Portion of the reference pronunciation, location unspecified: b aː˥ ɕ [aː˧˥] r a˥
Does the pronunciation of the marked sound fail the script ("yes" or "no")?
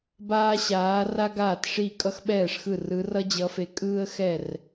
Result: no